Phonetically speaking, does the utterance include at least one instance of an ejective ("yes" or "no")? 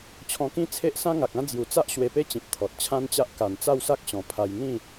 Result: no